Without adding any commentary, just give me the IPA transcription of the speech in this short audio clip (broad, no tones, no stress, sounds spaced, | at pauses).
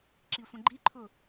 ǁ i sʷ ə̃ ɡ͡ǃ i ǃʰ ʊ